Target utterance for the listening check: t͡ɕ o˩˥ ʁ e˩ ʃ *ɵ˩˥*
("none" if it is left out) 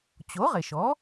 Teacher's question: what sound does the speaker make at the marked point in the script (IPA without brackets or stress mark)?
ɔ˩˥